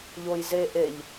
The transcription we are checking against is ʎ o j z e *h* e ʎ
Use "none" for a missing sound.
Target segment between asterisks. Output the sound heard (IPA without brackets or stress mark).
ʔ